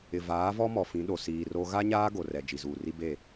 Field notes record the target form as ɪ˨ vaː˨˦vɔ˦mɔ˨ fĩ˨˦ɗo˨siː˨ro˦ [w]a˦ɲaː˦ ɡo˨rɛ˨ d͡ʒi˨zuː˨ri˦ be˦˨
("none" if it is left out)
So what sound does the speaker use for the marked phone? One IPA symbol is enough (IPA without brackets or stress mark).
ɣ